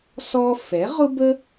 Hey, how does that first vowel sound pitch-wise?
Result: high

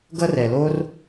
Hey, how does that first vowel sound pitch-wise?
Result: high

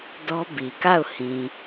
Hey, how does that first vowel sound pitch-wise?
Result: high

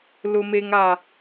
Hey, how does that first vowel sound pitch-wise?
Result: high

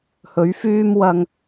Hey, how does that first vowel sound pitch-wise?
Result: rising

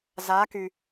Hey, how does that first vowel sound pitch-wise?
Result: rising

